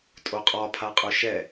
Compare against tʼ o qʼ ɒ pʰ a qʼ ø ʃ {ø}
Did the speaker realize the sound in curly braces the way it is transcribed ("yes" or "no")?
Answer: no